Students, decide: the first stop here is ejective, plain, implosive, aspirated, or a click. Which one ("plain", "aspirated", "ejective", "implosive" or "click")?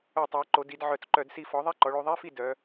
plain